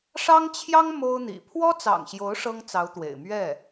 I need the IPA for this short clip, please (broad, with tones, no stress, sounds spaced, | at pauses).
ʂ ɑ˥ ŋ t͡ɕʰ j ɑ˥ ŋ m o˥ ʊ̯ n̪ ḭ˨˩ pʰ w ɔ˥ t͡s ɑ̰˨˩ ŋ ɕ j o˧˥ ʊ̯ ʂ ɤ˥ ŋ t͡s ɑ˧˥ ʊ̯ t̪ w ḛ˨˩ ɪ̯ m ɥ ɛ˥˩